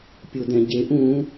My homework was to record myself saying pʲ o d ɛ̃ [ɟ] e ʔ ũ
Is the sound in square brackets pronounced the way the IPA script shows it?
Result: yes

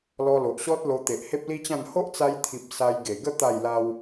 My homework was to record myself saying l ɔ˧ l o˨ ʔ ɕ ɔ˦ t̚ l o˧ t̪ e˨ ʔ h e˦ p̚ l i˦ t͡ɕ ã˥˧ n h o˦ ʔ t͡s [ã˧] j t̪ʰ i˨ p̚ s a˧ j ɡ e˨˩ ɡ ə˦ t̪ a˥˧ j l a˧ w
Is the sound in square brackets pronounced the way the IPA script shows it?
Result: no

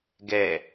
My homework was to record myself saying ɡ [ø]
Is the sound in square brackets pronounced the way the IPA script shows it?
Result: no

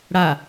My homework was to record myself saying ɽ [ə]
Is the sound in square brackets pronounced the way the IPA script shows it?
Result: no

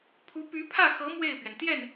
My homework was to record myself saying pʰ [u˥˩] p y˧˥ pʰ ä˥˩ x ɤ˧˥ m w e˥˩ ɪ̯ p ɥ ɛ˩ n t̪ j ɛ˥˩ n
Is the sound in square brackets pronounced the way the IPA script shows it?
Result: no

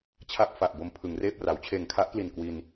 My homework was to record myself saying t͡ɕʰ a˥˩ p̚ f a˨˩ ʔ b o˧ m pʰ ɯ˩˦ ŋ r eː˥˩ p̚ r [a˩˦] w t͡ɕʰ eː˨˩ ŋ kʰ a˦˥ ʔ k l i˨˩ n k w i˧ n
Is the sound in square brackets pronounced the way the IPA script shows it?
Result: yes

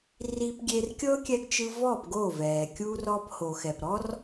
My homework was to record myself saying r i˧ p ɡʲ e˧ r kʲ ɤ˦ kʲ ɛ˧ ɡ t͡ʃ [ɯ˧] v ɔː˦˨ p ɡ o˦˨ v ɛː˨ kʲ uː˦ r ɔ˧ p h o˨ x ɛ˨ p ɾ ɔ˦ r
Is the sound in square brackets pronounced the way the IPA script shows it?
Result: yes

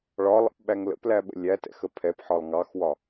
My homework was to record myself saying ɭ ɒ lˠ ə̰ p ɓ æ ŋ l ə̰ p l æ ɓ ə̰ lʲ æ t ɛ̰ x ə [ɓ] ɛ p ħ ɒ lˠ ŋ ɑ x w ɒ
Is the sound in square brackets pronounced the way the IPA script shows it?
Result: no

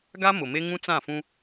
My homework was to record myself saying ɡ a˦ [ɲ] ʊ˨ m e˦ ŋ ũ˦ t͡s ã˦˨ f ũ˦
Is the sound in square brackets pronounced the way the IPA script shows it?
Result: no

